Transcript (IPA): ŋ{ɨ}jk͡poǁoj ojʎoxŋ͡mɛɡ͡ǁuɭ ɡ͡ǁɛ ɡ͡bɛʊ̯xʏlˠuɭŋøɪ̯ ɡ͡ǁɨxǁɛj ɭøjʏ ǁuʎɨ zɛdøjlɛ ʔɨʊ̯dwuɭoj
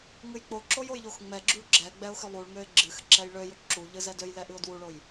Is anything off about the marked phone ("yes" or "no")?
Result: no